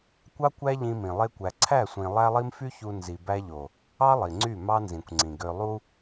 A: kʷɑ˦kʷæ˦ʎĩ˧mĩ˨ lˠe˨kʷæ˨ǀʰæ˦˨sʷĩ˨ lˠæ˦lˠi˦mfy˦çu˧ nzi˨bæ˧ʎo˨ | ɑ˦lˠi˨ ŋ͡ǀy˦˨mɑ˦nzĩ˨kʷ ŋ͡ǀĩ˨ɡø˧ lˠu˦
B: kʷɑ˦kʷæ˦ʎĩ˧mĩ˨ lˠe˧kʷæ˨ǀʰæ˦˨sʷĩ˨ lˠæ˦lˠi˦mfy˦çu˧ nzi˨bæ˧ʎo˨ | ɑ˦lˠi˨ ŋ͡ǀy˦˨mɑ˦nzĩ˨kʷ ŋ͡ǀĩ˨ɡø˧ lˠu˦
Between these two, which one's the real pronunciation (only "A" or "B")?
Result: B